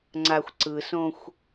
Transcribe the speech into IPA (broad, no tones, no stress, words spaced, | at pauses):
ŋ͡ǀaxʷǀɯsõxʷ